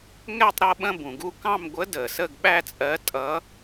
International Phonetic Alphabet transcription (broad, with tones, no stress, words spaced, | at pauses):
ŋɛ˥˧tˤ ɾʌ˥˧ ɓə̃˥˧bũ˨˩ɡu˥˧ kɑ̃˥˧mɡʷə˧˥ də˨˩ sə˥˧ɡɓæ˥˧t͡sʼɜ˧˥tʼʌ˧˥